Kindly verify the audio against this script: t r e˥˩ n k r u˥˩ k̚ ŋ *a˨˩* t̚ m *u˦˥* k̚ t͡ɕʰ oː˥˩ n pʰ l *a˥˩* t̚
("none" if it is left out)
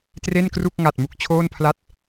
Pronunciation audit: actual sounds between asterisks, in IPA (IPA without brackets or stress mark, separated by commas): a˨˩, u˨˩, a˥˩